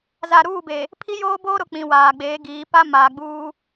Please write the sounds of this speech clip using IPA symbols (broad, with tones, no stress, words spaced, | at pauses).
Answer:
za˨ɾuː˦˨be˨ | pʰi˦joː˦boː˦ ɾʊ˨k͡pĩ˨ waː˨ɡ͡beː˨˦ɡiː˨˦ pa˦maː˨ɡ͡buː˦